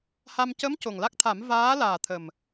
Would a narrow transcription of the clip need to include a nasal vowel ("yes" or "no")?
no